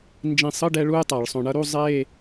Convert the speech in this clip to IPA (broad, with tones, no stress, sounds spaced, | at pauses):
n d͡ʒ ĩ˧˩ sˤ ɯ˧˥˧ ɖ ɛ˥ ɭ u˥ j tˤ a˧˩˧ ɭ sˤ õ˧˩ ɳ ʌ˥ ɾ u˧˥˧ zˤ e˥˧